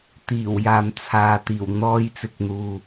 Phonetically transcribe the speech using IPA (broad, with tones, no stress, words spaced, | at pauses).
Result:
t̪iː˨˩wjaː˨m t͡sʰaː˨t̪iː˨˩w n̪ɔː˧jt͡sɪ˨k̚n̪uː˨